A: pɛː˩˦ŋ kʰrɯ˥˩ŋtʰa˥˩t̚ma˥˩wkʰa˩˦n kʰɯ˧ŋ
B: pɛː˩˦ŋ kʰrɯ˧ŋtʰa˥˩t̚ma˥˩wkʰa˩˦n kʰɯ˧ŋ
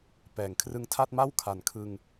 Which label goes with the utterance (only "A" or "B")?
B